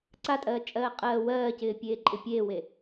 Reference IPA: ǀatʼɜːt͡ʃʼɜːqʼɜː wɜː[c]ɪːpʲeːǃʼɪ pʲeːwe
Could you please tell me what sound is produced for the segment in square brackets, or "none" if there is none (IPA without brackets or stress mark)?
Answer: c